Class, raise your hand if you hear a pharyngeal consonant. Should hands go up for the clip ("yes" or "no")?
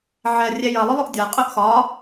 yes